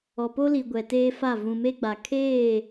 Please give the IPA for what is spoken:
ɔ˨ p o˦ l i˨ ɡʷ ɛ˨ t eː˦ f a˦˨ v ũ˨ m e˦ ɡ͡b a˨ kʰ eː˦˨

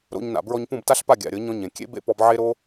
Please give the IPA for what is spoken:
ɾ o̰˧ ɲ n a̰˨ b ɹ ɔ˧ ɲ p ũ˦˨ b t a˦ ɬ p a˦˨ ɡʲ a̰˨ ɾʲ ɤ˨˦ ɲ ɔ̃˧ ɲ ẽ˨ kʲ ḛ˦ b ḛ˦ p ɔ˧ b ʕ e˦ ɾ o˦

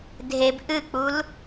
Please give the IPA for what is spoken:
dʱ e b ʔ ɨ k͡p u l

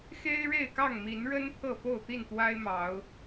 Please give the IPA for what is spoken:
x e˦ ɪ̯ ɻ e˥˨ ɪ̯ k ɑ˥˨ ŋ m i˨˦ n ɻ ə˦ n pʰ ɤ˥˨ f o˥˨ ʊ̯ t̪ i˥˨ n t̪ w a˦ ɪ̯ m ɑ˨˦ ʊ̯

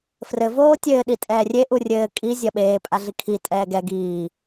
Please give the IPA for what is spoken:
f r ɘ v oː tʲ ɘː ɗ i tʼ ɛː rʲ e ʔ u rʲ ɘː kʼ i zʲ ɐ ɓ eː pʼ a ɮ i kʰ i tʼ ɛː ɡ ɛ ɡ iː

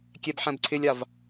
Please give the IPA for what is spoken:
kʲ ɛ b ħ ɛ̃ b ǀʰ ɪ lʲ a v

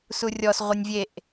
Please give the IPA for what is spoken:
s u rʲ ɔ s ʁʷ ɛ nʲ vʲ e ʔ

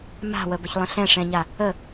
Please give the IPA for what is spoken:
m a̤ w ə b ə ç lˠ ə̃ ɬ ɛ̃ ʂ ɛ̃ ɲ a | ə

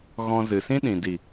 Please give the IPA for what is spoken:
ɣ ɔ̃˧ z ɨ˨ s ĩ˦ ɗ ĩ˨ d i˨

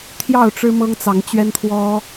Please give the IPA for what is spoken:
t̪ʰ j ɑ˥˨ ʊ̯ ʈ͡ʂ ɻ̩˦ m ɤ˦ ŋ t͡s ɑ˨˦ ŋ t͡ɕ ɥ ɛ˦ n t̪ʰ w ɔ˦

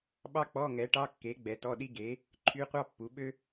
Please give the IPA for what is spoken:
ɓ ɑ˥ k͡p ɔ˧˥˧ ŋ ɛ˩˥ ʈ ɑ˧˥˧ kː e˩˥ ɡ͡b ɛ˩˥ t ɔ˧˥˧ ɗ i˥ ɡ e˩˥ | ǃʰ y˧˥˧ qʷ ɑ˥ pː u˩˥ ɓ ø˥

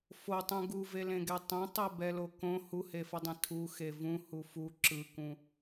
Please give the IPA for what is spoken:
f o tˤ ũ ɡ u v e l ẽ ɡ ɛ tˤ ɛ̃ tˤ ɛ b ɛ l o k õ h u h e f ʌ dˤ ẽ tʰ u x e v ũ h u f u ǁ ɯ k ũ

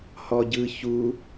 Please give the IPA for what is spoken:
h ɔ ɟ ɯ ç u

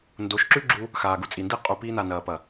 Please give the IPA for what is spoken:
n d o˨˦ ʃ ǁ ʉ˦ ɡ͡ǁ u˦ | x aː˨ ɡ u˧ t͡sʼ i˨ n d i˦ qʼ u˨ p iː˧ n a˨ n ɐː˨ p ɐ˨

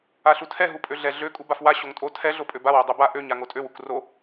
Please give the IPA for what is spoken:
a ɬ u tʰ ɛ ɦ u pʼ ø ɮ ɛ ɮ ø kʼ u b a f w a ɕ o ŋ tʼ o tʰ ɛ ɮ o pʼ ø b a w o dˤ u b a ʔ ø ɲ a ŋ o tʼ ø w u k r o

